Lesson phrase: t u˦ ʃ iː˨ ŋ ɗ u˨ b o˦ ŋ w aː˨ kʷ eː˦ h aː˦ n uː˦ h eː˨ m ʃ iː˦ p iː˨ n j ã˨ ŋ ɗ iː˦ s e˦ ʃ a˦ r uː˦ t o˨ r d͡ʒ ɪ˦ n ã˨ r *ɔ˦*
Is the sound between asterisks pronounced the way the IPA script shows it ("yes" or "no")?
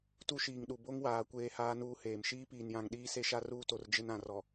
no